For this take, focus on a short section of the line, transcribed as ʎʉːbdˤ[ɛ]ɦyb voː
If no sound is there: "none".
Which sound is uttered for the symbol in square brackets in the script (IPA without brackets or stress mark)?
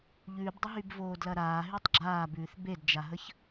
ə